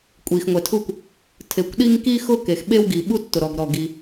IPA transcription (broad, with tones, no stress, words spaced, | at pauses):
kʷʼi˩xŋʷɛ˩tʰu˥kʷ | tʰe˩kʷɗi˥ŋ ki˥xʊ˥ke˩x ɓe˥wɡi˩ɓu˥ tːʊ˩ɾɔ˩ɡɾɔ˩ ɡi˩